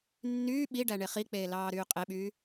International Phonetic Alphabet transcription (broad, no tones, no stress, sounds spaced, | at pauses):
nː yː ɓ i ɖ æ ɳ e χ i k͡p eː l ɑː ɾ yː qʼ e ɓ yː